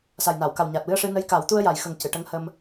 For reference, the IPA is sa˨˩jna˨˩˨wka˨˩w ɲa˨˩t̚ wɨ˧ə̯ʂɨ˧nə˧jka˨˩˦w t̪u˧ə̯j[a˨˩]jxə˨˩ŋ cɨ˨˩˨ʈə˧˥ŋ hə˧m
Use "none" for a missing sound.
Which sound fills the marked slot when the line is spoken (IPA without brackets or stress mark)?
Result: a˨˩